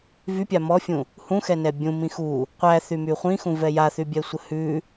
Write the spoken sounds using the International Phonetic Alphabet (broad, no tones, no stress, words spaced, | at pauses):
vypʲa mɔfʲũ | hũxɛnɛ bʲũmĩ xu | qʷæθymy χʷĩxũvɛ jaθybʲɛsʷə hʉ